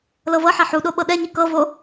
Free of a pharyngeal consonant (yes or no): no